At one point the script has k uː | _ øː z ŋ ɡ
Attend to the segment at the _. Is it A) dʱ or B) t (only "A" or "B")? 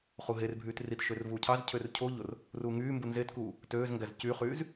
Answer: B